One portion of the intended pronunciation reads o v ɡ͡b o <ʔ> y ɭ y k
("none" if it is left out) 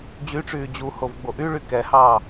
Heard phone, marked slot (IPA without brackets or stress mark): ʔ